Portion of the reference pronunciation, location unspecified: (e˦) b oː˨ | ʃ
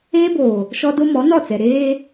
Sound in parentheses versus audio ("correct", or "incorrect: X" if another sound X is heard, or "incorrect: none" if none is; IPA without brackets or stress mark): incorrect: eː˦